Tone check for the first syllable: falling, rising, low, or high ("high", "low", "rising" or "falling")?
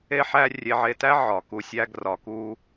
high